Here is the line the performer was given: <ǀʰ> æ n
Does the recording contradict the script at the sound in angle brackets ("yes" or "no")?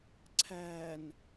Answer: no